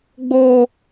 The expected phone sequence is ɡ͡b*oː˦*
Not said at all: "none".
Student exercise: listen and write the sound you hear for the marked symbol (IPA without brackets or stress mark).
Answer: oː˦